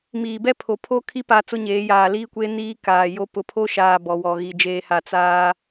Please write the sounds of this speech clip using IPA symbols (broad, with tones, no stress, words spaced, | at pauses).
miː˨bɛ˦ pʰo˨pʰo˦kʰi˦ pa˦ t͡sʊ˦ɲeː˨˦jaː˨ liː˦kʷe˦ niː˦kaː˨jo˦ pʊ˨pʰo˦ʃaː˨ bɔ˨wɔ˨ ɣi˨d͡ʒeː˨ha˨ t͡saː˦